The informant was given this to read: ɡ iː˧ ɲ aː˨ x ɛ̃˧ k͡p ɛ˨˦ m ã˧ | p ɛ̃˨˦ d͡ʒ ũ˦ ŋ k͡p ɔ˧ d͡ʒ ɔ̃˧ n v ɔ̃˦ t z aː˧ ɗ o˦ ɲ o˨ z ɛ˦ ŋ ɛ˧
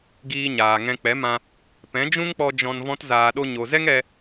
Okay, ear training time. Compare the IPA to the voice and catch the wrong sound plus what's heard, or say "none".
x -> ŋ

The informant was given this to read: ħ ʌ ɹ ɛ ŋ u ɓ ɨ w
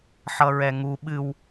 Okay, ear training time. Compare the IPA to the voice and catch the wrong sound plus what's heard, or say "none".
none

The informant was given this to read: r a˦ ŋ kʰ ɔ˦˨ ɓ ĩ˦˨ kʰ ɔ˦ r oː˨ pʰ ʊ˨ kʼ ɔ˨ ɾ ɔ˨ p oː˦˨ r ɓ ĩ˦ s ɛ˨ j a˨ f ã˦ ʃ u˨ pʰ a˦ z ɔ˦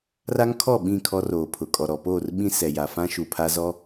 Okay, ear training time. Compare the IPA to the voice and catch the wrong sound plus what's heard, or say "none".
none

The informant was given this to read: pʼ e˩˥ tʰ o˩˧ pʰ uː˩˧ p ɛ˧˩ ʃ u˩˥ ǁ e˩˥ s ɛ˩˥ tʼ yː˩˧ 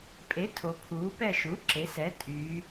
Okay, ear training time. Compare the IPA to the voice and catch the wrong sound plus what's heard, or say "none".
none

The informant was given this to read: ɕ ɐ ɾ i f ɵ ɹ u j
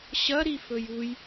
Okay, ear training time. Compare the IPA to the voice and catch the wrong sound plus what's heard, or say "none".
ɹ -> j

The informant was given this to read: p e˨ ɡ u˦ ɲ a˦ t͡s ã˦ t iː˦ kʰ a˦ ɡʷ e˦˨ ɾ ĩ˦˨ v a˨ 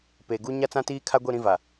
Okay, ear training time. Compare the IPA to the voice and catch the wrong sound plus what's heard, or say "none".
none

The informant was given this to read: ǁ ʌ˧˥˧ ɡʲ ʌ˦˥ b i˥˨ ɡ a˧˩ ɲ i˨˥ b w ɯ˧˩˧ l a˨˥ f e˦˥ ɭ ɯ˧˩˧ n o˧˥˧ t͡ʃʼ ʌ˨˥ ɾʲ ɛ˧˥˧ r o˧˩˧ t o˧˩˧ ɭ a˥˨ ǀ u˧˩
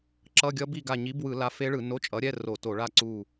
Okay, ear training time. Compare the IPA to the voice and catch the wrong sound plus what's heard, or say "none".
none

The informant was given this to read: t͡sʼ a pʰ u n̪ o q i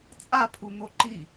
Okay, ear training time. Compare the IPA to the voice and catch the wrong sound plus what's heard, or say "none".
q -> ǃ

